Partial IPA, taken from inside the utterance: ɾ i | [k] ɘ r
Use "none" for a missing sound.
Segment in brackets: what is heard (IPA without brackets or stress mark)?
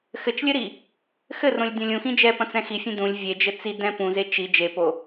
x